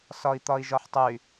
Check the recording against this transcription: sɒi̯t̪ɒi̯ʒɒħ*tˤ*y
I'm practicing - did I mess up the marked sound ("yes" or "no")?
no